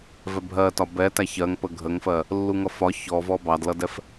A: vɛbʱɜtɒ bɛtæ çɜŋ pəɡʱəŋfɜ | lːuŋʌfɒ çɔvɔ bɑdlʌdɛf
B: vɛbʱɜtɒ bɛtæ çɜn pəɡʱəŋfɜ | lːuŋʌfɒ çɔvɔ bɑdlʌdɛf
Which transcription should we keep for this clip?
A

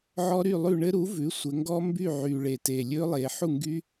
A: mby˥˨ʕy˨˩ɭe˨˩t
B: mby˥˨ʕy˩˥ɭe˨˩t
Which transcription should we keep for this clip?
A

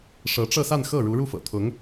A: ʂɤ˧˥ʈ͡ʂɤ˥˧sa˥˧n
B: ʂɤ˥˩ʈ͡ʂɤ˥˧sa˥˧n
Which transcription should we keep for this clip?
A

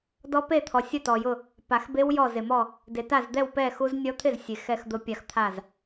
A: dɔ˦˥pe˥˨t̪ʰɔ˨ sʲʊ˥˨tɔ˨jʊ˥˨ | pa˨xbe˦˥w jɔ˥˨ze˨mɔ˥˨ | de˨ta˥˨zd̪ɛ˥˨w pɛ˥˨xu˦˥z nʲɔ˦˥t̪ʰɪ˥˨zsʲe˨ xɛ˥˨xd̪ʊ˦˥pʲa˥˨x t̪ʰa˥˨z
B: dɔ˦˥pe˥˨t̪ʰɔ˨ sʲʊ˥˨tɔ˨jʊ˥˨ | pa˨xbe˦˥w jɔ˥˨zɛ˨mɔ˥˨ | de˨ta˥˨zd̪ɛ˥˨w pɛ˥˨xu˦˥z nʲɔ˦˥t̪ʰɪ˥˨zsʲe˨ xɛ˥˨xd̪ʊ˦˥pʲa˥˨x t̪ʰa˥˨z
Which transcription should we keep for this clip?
A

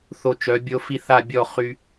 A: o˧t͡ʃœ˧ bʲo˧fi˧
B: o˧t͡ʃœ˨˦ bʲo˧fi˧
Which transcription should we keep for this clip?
B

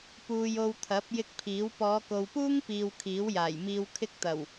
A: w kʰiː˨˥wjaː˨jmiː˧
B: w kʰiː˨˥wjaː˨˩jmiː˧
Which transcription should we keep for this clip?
B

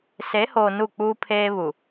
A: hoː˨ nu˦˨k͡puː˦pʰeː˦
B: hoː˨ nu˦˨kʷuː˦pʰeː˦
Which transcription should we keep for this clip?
A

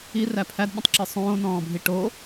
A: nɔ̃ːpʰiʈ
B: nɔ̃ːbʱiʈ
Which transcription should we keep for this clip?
B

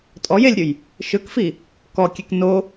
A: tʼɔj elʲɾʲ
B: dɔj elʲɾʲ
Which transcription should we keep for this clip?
A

